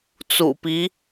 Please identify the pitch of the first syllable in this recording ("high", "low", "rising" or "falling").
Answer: low